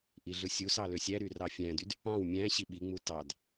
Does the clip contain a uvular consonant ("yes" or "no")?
no